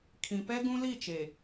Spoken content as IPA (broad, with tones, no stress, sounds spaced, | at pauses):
kʰ ĩ˨ p ɛ˦ ɡ ũ˦ l i˦˨ t͡ʃ e˨